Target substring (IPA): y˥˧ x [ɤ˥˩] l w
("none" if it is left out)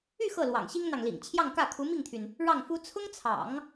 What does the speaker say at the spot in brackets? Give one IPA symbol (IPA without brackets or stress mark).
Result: ɤ˥˩